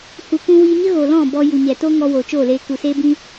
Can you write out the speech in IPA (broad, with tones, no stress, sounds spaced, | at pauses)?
h u˨ kʷ ũ˧ w iː˧ ɲ ə˦ ɣ o˨ l ɔ̃˦˨ b ɔ˧ j u˨ ɲ ɛ˨ t o˦ ŋ ɔ˧ w o˨ t͡ʃ oː˦˨ l eː˧ k u˨ s eː˦ b ĩ˦